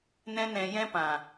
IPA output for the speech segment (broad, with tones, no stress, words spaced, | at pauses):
nɛ̃˦nɛ̃˧jɛ̃˦pã˨